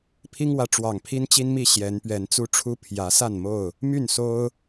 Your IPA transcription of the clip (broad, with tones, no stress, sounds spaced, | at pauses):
pʰ i˦ ŋ w ä˨˦ ʈ͡ʂ w ɑ˨˩ ŋ pʰ i˦ n t͡ɕ i˦ n m i˥˨ ɕ j ɛ˨˦ n p ɥ ɛ˨˦ n t͡s u˦ ʈ͡ʂʰ u˦ pʰ j ä˨˦ s a˥˨ n m o˥˨ ʊ̯ | m y˥˨ n s o˦ ʊ̯